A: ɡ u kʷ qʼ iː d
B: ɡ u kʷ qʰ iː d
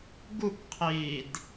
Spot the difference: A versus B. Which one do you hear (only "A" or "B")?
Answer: B